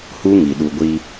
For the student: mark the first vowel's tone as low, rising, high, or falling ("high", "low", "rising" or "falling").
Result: high